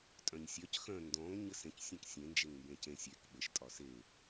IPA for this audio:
tʼ œ̃ ɲ sʲ œ c x œ̃ n d ɔ̃ ŋ ɲ ɘ s ẽ c sʲ œ̃ k sʲ ẽ n d͡ʒ e ŋ m b ẽ c ẽ sʲ e k ɓ ɘ ʃ tʼ ɒ s e

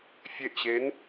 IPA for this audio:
fʲ e ʔ ɕ e n

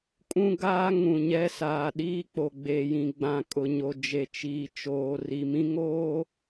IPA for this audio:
kʼ ũ˦ ɡ aː˦ ŋ ũ˨ ɲ ɛ˦ s aː˨ ɗ iː˦ k͡p o˨ ɡ͡b e˨ j ĩ˨ ɡ͡b ã˨ kʼ ʊ˨ ɲ o˨ d͡ʒ e˨ t͡ʃ iː˨ t͡ʃ oː˨ r i˨ m ĩ˦ ŋ oː˦

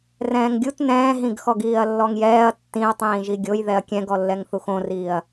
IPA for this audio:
r ɛ̃ː ŋ ɡʲ u t n ɛ̃ː ɦ ĩ ɡ x ɔ ɡ iː ɐ̯ lː ɔ ŋ j ɛː ɐ̯ tː ĩ ɐ̯ tˤ ĩː ʒ i ɡʲ o j ð ɛ ɐ̯ kʲ ɛ̃ ɡ ɔ lː ɛ ŋ θ u x õ r iː ɐ̯

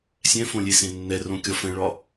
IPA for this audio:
sʲ ɛ̃ f õ lʲ e s ẽ nː ɛ r õ kʲ ɒ f ɛ̃ ɭ ɒ

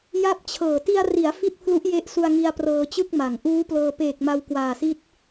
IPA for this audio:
j a˥˩ p̚ t͡ɕʰ ɤː˨˩ t i˧ a̯ r i˩˦ a̯ f i˥˩ t̚ pʰ l u˦˥ ʔ j e˦˥ ʔ s u˧ a̯ ŋ i˧ a̯ p r ɤː˧ t͡ɕ ɯ˥˩ k̚ m a˩˦ ŋ ʔ uː˦˥ p l ɤː˧ p eː˨˩ k̚ m a˧ w k w aː˨˩ s i˦˥ t̚

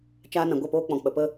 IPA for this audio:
t͡ʃ aː˦ n ã˧ ɡʷ ɛ˦˨ p oː˦ k͡p ɔ̃˨ k͡p ə˨ p ə˦

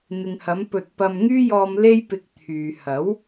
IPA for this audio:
n̪ ɪ˨ ŋ h ɐ˨˧ m p ɵ˨ t̚ p ɐ˧ m ŋ yː˥ j ɔː˧ m l e˥ j p ɪ˧ k̚ t̪ʰ yː˨ h ɐ˨˥ w

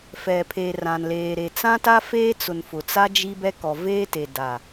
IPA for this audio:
f ɛ˨ pʰ e˨ r ã˨ n l eː˨ ɾ e˨ t͡s ã˦ t a˦ f eː˦ t͡s ʊ˨ n f ʊ˨ t͡s a˦ d͡ʒ i˦ b ɛ˦ k ɔ˨ v eː˦ t e˨ d a˨

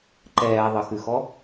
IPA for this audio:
ǃ ɛː ðˤ ə x ʉ x ɔ

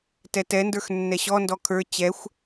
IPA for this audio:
t ɛ t ɛ n d ə˞ x nː ɛ ɕ ɔ n d ɔ kʰ ə˞ t͡ɕ ɛ xʷ

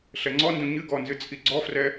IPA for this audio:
ɬ ɛ ŋ͡ǀ ɔ n d ũ ɲ ɨ ɡ ɔ n z ɨ t͡sʼ i ɡ͡ǀ ɔ f r ɛ

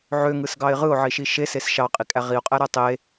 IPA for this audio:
ʕ ø ŋ ɯ s ɡ ɑ ɪ̯ ʁ ɯ ʊ̯ ʕ i ʃ i ʃ e s e s ʃ ɑ qʼ i kʼ æ ʁ i ʊ̯ qʼ æ ɾ æ tˤ e

